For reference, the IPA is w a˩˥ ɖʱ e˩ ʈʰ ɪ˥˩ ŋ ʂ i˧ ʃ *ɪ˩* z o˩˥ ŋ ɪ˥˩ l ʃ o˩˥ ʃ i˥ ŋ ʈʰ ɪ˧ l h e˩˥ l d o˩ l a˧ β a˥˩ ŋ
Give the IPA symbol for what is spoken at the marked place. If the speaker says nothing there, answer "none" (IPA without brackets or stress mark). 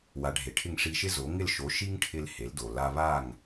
ɪ˥